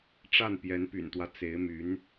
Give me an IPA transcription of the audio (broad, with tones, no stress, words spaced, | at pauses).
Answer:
ʈ͡ʂa˥˩n pjɛ˧˥npy̰˨˩nt̪wä˦ t͡se˧˥ɪ̯my˧˥n